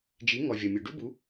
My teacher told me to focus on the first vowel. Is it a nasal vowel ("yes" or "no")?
no